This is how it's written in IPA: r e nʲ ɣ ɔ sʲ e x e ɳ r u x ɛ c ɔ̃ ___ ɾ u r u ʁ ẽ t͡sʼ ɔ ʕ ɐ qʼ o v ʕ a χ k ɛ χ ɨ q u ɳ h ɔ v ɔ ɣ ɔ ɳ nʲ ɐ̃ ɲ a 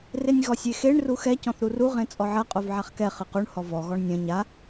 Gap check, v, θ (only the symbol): θ